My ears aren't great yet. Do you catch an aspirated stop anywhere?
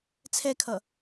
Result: yes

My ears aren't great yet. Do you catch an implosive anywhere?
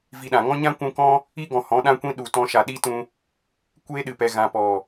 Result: yes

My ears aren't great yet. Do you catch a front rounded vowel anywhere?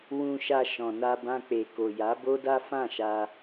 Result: no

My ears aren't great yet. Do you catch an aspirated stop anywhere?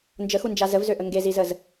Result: no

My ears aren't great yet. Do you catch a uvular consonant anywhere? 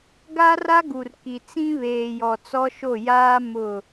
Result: no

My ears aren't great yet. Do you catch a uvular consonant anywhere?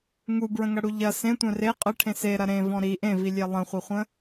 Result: yes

